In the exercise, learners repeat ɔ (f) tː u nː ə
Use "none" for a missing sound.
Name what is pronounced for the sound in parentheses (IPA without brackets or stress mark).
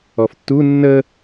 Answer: f